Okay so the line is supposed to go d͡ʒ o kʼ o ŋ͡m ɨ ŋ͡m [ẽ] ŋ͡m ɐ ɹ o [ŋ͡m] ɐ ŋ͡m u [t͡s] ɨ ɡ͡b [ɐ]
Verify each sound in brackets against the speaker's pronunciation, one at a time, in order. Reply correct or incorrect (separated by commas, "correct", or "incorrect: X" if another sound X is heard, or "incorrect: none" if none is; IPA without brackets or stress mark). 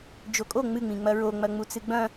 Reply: incorrect: ĩ, correct, correct, incorrect: ɐ̃